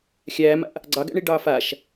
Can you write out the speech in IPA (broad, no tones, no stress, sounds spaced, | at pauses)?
xʲ æː m a̰ ʔ | ɡ͡ǀ ɑ ɡ æ̰ ɳ i ɖ ɑː f a ʃ